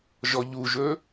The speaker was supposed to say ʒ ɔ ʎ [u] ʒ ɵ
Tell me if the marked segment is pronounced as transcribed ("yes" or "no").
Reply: yes